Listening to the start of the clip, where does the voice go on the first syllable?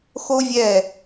high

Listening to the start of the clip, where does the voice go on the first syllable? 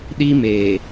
high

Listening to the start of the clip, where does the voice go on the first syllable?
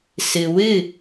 low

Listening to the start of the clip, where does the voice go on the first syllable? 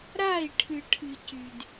falling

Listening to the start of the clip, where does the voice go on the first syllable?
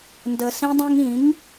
high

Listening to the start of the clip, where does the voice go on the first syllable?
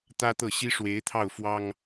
high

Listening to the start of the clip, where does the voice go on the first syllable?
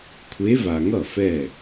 rising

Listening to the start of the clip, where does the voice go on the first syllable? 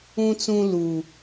low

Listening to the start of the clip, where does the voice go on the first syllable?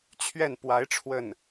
falling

